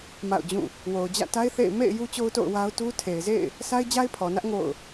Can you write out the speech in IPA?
m a̰˦˨ ʊ̯ d͡ʑ ũ˦˨ | w o˨ ʊ̯ d͡ʑ ä̰˦˨ t a˦ ɪ̯ θ ḛ˦˨ ɪ̯ m ḛ˦˨ ɪ̯ j u˦ t͡ɕ o˦ ʊ̯ t o̰˦˨ ʊ̯ w a˦ ʊ̯ t u˦ tʰ e˨ ɪ̯ z ḛ˦˨ ɪ̯ | s a˦ ɪ̯ d͡ʑ a˦ ɪ̯ pʰ ɔ˨ n ä˦ ʔ ŋ o̰˦˨ ʊ̯

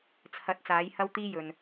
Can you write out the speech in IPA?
t͡sʰ ɐ˨˥ t̚ t͡s aː˨˥ j h ɐ˥ w t̪ iː˥ j ɵ˨ n

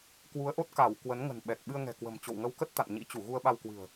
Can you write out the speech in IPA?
k w u˨˦ ə̯ ʔ o˦˥ t̚ k a˧˩ w k w ə˨˦ n ŋ ə̤˨˩ n ɓ ɛ˨˩ k̚ ɓ ɨ˧ ə̯ ŋ ɛ̤˨˩ k w ə̤˨˩ m t͡ɕ o̰˧˨ w ŋ ə˧ w k ə˦˥ t̚ t̪ a̰˧˨ n ɲ ḭ˧˥ t͡ɕ u˧˩ ɣ u˧ ə̯ ɓ a˧ w k w ɨ̤˨˩ ə̯

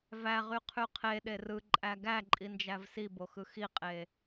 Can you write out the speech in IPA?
v æ ʁ y qʰ y qʰ e ɗ e r ɯ ǃʼ æ ɡ æ ǃʼ i n d͡ʒ æ v s i b o x ɯ x i qʼ e

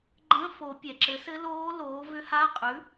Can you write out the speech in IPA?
ɡ͡ǃ ə̃˧˥˧ f o˨˩˦ pʲ ɛ˩ ǁ ɘ˩˥ s ɘ˧˥ l oː˧˥ l oː˩˥ v ʏ˧˥ h a˧˥˧ qʼ ʉ˩˥

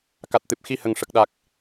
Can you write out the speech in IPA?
k a˨˩ t̚ t̪ ɨ˨˩ p̚ x i˧ h ə˨˩ ŋ ʂ ə˨˩ k̚ ɗ a˨˩ k̚

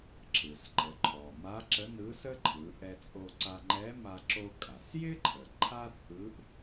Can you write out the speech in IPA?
ǁ ɯ˩ s ǃ ə˩˧ ǃʰ ɔ˩ m a˧˥ ǁ ə˧˥ n ɯ˧˥ s ə˥ ǃʰ ɯ˩˧ ʔ ɛ˧ t͡sʼ o˧ ǀ a˧ ŋ͡ǃ ɛ˧˥ m a˧ ǁ o˧ kʼ a˩ s j ɪ˥ ǃʰ ə˩ ǃʰ a˥ t͡sʼ ɯ˧˥ ʔ

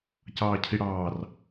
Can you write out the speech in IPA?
c ɑː cʰ i ɽ ɑː r

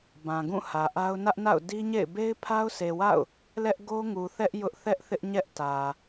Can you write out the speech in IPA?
b ã˨ ɡ ũ˦˨ h ä˨ ʔ a˦ ʊ̯ n ä˦ ʔ n a̰˦˨ ʊ̯ d i˦ ɲ ḛ˦˨ ɪ̯ b e˦ ɪ̯ pʰ a˦ ʊ̯ sʰ e˨ w a̰˦˨ ʊ̯ | l ɛ˦ ʔ ɡ o˦ ŋ u˨ θ ɛ˦ ʔ j ʊ˦ ʔ θ ɛ˦ ʔ θ ɪ˦ ʔ ɲ ɛ˦ ʔ t ä˨

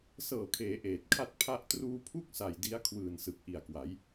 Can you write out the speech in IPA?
s ɤː˨˩ kʰ eː˩˦ ʔ eː˨˩ t̚ kʰ a˥˩ t̚ pʰ a˥˩ ʔ t r uː˧ pʰ u˥˩ k̚ s a˨˩ j d i˦˥ a̯ kʰ w ɯː˨˩ n s ɯ˨˩ k̚ ʔ i˨˩ a̯ k w a˩˦ j

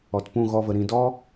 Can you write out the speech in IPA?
ɔ˨ t p ũ˦˨ ɣ ɔ˧ v ə˨ ɾ ĩ˨ d ɔ˦

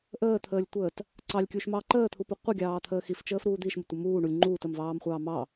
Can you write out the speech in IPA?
ʔ əː t̪ʰ əː lʲ tʷ əː t | ǀ ɑ lʲ kʲ u ʃ m ɑ ǃ əː t̪ʰ u p u qʷ ə ɡʲ ɑː t̪ʰ əː x i f t͡ʃ əː f ɾ uː d̪ i ʃ m ə tʷ ə m uː ɳ u lʲ ŋ͡ǃ uː t ə m v ɑː m χʷ ɑː m ɑ

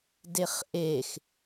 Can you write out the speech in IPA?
d e χ ʔ e x

